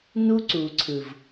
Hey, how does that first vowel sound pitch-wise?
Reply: high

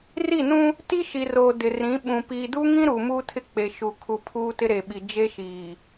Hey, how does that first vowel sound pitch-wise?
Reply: falling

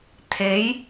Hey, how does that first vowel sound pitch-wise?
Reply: rising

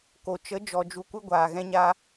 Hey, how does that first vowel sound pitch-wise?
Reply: low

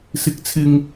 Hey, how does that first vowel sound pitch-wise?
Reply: high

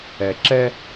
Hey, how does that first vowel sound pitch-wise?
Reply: low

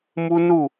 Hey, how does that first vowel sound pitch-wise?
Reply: high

